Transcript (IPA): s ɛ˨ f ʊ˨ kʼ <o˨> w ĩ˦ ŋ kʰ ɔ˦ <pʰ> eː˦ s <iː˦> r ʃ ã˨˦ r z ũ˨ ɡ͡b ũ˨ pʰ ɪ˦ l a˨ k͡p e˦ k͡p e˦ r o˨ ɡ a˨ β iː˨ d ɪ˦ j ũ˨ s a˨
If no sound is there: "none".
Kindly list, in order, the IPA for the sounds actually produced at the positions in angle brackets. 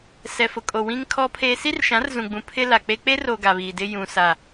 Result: o˨, pʰ, i˦

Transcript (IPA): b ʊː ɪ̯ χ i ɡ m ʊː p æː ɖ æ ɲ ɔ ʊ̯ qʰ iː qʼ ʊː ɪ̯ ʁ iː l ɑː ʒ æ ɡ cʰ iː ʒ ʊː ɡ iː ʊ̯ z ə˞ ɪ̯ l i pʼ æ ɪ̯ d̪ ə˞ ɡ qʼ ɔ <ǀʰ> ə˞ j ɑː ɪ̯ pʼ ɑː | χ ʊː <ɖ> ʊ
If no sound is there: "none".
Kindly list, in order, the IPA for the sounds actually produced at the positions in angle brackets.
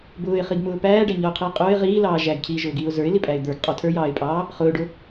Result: tʰ, ɖ

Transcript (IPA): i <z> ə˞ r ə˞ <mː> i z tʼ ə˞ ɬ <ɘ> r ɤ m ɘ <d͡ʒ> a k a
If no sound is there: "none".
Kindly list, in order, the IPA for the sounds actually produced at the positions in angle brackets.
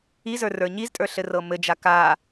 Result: z, ɲ, ɘ, d͡ʒ

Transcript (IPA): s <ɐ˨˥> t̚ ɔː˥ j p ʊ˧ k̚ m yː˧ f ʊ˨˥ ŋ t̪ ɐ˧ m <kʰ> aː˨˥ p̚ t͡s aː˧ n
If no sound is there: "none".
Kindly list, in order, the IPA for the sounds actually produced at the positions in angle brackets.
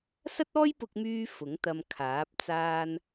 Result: ɐ˥, kʰ

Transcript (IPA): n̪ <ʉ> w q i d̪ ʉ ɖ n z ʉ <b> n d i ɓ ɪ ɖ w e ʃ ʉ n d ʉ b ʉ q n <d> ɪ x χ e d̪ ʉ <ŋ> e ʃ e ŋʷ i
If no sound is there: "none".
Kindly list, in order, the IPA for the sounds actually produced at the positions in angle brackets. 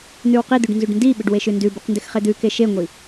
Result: ʉ, ɖ, d, k

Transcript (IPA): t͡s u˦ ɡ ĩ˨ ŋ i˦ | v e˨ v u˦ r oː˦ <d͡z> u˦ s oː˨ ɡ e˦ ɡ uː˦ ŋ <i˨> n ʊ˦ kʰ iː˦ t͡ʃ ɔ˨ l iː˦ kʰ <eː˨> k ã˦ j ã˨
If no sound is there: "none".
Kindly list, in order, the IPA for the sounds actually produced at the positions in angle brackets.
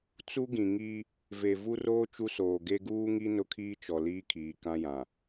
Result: t͡ʃ, i˦, iː˨

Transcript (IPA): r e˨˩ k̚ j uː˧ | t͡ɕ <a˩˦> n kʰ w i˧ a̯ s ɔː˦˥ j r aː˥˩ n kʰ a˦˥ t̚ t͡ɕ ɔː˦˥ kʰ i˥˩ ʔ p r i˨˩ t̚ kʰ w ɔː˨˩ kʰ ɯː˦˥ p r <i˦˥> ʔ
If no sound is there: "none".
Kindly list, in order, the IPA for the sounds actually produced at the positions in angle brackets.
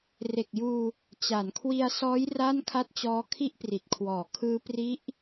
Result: a˩˦, i˦˥

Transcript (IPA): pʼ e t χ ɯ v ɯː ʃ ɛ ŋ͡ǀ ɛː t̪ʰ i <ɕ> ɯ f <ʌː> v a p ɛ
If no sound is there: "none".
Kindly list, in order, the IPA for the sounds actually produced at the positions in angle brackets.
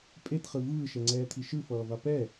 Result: ʃ, ʌː

